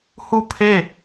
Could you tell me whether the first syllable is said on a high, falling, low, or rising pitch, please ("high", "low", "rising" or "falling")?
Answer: falling